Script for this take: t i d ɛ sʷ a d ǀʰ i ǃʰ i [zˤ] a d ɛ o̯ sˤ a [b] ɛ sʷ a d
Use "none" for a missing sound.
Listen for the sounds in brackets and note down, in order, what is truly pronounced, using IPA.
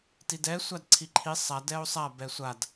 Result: sˤ, b

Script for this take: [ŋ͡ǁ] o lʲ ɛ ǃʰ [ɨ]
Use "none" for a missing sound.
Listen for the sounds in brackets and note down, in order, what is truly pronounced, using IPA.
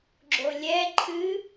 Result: ɡ͡ǁ, ɨ

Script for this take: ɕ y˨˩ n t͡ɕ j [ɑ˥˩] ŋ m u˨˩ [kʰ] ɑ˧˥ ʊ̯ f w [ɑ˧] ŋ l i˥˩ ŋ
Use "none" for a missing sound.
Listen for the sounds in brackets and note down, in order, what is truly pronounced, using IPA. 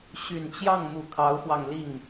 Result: ɑ˥˩, kʰ, ɑ˧

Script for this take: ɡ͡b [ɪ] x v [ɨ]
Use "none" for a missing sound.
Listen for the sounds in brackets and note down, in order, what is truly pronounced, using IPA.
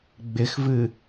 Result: ɪ, ɨ

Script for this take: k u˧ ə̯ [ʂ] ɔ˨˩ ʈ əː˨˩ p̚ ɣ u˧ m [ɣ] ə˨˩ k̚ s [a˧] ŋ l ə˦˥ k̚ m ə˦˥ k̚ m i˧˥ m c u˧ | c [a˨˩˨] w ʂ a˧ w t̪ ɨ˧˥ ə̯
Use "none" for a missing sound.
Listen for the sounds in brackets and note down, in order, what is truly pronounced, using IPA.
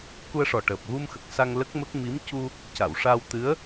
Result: ʂ, x, a˧, a˨˩˨

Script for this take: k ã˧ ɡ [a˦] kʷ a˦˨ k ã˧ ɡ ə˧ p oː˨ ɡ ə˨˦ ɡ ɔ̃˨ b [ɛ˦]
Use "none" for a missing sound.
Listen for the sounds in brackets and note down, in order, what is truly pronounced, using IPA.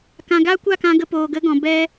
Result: a˦, ɛ˧

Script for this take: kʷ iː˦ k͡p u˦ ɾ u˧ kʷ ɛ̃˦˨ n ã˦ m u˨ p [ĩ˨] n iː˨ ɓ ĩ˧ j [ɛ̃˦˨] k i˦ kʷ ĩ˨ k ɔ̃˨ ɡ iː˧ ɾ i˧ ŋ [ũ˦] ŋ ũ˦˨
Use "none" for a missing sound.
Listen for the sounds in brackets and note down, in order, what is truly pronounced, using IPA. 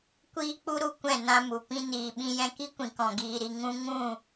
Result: ĩ˧, ɛ̃˧, ũ˦

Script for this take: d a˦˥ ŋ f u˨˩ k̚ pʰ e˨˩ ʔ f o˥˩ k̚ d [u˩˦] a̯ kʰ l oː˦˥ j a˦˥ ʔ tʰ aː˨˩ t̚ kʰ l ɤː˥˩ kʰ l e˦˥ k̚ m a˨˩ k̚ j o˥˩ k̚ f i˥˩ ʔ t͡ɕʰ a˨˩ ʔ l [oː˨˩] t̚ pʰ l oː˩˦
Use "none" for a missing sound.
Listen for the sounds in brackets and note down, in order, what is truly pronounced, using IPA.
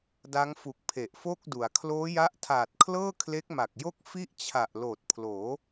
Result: u˩˦, oː˨˩

